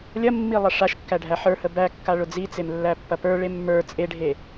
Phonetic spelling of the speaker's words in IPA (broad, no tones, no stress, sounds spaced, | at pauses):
lʲ ɐ mː i lˠ ɐ ʂ a ʃ kː æ ɖʱ æ ħ ə˞ h ə b æ kː a ɭ ʊ d͡z i t͡s e m lː æ pː ɐ p ə˞ ɭ e mː ə˞ t͡sʼ e ɖʱ e